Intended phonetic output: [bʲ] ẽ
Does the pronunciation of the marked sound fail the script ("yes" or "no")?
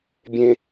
no